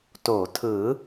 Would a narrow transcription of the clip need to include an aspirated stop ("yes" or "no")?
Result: yes